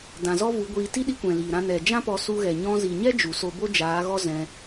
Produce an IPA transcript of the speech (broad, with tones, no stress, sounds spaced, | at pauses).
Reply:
d ã˨ z ɔ˦ v u˨˦ ɡʷ iː˧ t i˦ ɗ i˧ kʷ ɛ̃˨ l iː˨ ɾ ã˧ n ɛ˨ d͡ʒ ã˦ p ɔ˧ s u˧ ɣ ɛ˨ ɲ ɔ̃˧ z i˨ ɲ ɛ˦ d͡ʒ u˨ s o˧ b o˦ d͡ʒ aː˨˦ ɣ ɔ˦ z ɛ̃˧